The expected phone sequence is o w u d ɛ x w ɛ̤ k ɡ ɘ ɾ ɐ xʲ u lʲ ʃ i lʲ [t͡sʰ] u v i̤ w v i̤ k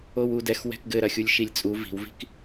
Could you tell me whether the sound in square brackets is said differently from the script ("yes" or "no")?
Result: yes